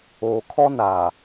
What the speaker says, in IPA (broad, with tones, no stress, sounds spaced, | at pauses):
oː˨ kʰ ɔ˦ n aː˨